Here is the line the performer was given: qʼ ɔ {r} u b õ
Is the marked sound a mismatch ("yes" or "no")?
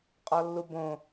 yes